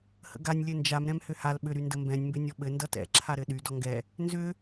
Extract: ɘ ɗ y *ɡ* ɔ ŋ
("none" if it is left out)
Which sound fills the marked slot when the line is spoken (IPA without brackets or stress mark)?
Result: d